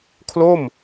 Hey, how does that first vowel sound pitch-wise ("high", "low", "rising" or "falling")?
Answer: falling